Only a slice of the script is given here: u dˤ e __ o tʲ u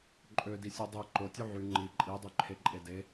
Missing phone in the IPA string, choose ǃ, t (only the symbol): ǃ